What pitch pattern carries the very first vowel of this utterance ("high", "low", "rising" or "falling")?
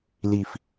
low